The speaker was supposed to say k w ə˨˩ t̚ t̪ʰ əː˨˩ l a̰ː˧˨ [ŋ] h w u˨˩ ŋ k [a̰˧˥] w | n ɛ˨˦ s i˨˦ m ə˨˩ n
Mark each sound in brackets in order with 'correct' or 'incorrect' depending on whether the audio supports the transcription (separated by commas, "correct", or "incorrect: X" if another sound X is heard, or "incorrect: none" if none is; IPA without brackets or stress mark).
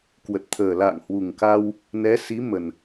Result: correct, incorrect: a˧